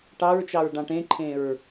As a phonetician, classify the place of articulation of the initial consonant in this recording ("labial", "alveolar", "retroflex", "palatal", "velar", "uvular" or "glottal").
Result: retroflex